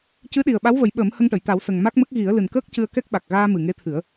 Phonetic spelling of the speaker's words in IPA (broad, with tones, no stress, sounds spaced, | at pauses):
c ɨ˧˥ ɗ i˨˩ ə̯ ɓ a˧˥ w v ə˨˩˦ j ɓ əː˨˩˦ m h ə˧ ŋ ʈ ə˨˩˨ j t̪ a˨˩˦ w s ə˨˩ ŋ m a˦˥ k̚ m ə˦˥ k̚ ɣ i˨˩˦ ə̯ l ɨ˨˩ n k əː˦˥ k̚ c ɨ˧ ə̯ k ɛ˦˥ k̚ ɓ a˨˩ k̚ ɣ aː˧ m ɨ˨˩ ŋ e˧˥ t̪ʰ ɨ˨˩˦ ə̯